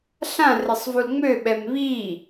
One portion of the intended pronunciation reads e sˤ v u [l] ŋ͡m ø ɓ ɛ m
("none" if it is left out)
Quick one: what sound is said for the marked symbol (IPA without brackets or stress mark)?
l